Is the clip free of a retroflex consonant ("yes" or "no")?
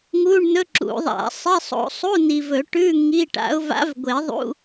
no